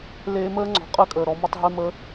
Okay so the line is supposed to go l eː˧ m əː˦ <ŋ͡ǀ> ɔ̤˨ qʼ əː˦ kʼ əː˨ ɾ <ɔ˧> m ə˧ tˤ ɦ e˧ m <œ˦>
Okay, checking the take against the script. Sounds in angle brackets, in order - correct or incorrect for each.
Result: correct, correct, incorrect

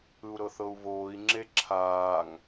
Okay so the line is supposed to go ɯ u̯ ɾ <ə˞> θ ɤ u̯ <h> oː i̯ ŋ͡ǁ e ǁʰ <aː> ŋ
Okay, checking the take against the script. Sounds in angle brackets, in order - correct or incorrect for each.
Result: incorrect, incorrect, correct

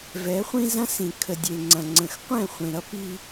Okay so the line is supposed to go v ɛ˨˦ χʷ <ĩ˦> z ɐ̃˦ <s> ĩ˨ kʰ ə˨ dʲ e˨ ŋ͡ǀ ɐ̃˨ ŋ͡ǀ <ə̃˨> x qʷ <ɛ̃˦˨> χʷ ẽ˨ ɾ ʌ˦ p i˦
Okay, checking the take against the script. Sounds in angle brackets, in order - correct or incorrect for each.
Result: correct, correct, correct, correct

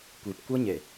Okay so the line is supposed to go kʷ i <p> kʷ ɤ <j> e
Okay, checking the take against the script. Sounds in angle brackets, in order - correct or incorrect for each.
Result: correct, incorrect

